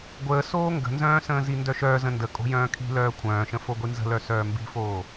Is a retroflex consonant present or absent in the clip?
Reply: absent